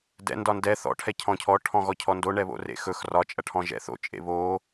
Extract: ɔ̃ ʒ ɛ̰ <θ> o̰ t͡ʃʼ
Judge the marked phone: correct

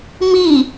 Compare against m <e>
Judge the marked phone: incorrect: i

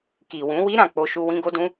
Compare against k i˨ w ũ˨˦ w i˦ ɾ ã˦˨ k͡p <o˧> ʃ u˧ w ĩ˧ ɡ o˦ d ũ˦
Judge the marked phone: correct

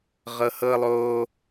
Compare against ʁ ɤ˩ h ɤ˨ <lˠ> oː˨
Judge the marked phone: correct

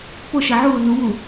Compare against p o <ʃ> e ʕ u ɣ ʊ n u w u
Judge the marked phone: correct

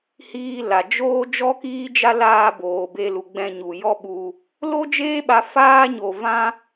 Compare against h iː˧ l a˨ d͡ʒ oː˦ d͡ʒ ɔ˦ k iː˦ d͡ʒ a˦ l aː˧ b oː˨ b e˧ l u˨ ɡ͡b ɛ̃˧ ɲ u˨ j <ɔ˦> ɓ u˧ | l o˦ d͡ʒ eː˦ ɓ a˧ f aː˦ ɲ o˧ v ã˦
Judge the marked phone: correct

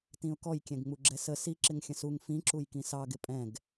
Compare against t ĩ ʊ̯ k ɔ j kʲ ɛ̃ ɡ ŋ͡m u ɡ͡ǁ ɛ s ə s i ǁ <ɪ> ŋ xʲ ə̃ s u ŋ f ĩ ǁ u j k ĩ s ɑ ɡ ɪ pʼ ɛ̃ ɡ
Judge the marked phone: correct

